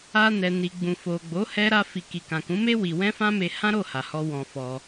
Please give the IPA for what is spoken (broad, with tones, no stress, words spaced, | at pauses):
a˧nɛ˨ni˨ ɡ͡bũ˨fo˨ɡ͡bo˨˦ hɛ˦ ɾa˦fi˧ ki˨kã˨kũ˨˦me˦ wi˧ wɛ̃˦fã˦me˧ hã˦ɾo˦˨ha˨hɔ˧ wɔ̃˧fɔ˧